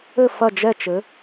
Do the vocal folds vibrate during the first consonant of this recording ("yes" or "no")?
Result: no